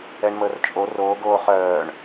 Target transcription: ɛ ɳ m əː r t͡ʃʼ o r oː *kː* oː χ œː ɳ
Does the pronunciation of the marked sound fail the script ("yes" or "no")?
yes